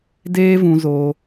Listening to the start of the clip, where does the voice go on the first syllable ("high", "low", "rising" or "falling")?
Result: high